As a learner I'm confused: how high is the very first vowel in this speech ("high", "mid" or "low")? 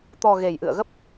mid